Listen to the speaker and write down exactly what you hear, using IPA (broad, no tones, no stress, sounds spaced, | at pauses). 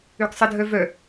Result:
ø ɡ sˤ ə dʱ œ v œ